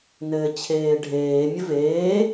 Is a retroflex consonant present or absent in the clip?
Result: present